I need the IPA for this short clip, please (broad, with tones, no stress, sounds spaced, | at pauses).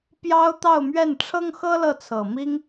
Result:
p j ɑ˥ ʊ̯ t̪ ɑ˥˧ ʊ̯ m ɥ ɛ˥˩ n ʈ͡ʂʰ ɤ˥ ŋ x ɤ˥ l ɤ˥˩ t͡sʰ ɤ˨˩ m i˥ ŋ